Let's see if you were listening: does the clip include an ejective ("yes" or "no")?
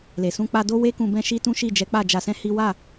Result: no